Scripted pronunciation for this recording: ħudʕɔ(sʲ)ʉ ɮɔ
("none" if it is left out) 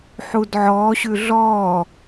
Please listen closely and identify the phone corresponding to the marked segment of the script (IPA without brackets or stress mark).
ɕ